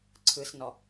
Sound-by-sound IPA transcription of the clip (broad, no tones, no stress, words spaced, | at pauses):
ǀʰɯsnɔ